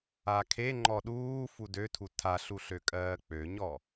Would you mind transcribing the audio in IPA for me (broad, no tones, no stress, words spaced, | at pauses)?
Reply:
akʰe ŋ͡ǃɔɗuː fudøtʰu tʰaɬuɬøkʼɜː k͡pøɲɔ